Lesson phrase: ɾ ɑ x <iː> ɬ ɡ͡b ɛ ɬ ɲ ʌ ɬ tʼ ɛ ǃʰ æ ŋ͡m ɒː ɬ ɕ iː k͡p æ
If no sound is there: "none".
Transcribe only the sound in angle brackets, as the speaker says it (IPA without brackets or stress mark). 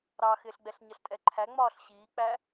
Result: ɪː